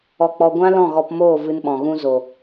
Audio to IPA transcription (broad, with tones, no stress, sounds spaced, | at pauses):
ɔ˧ k͡p ɔ˧ ɡʷ ã˦ l ɔ̃˦˨ ɣ ɔ˧ p m oː˦˨ v ɨ˧ n ɓ ɔ̃˨ ɣ ũ˧ z o˨